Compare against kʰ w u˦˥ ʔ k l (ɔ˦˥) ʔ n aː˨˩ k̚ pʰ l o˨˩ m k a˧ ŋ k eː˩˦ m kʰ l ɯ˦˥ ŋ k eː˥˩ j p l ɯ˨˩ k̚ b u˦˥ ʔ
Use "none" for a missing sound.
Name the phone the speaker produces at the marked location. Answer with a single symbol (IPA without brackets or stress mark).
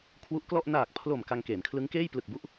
ɔ˥˩